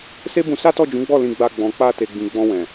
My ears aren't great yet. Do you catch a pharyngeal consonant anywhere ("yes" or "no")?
no